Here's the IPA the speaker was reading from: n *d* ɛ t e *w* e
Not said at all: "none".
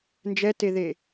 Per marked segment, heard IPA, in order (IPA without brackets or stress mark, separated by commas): d͡ʒ, ð